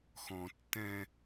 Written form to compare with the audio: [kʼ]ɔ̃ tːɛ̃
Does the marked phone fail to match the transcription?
yes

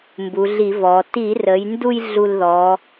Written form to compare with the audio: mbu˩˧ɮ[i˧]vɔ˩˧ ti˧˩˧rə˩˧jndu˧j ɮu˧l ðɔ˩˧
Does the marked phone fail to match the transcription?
yes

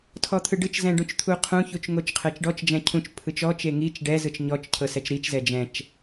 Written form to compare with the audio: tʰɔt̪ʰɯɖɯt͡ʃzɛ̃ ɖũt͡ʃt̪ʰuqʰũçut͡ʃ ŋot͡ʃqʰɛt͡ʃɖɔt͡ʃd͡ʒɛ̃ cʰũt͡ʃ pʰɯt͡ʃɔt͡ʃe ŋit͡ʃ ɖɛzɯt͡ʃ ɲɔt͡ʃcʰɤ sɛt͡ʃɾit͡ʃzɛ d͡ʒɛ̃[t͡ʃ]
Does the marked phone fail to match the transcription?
no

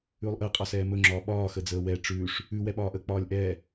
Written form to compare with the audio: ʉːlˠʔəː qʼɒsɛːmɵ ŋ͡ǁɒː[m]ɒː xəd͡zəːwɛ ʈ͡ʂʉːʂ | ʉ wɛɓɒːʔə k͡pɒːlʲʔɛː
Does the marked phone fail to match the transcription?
yes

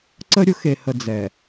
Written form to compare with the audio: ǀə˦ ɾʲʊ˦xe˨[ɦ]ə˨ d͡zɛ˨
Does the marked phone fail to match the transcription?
yes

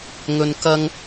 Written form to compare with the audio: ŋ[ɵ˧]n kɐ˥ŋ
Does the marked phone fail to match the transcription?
no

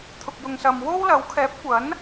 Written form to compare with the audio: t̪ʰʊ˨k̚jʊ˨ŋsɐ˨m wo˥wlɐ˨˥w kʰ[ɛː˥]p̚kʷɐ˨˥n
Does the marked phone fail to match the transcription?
yes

